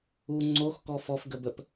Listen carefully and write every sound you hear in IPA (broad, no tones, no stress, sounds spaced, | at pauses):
u ŋ͡ǀ o x k ɔ f ɔ f ɡ ə b ə p